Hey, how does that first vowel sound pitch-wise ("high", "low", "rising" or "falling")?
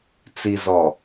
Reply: low